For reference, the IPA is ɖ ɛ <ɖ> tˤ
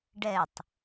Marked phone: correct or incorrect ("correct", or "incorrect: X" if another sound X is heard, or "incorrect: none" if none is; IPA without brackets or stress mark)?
incorrect: none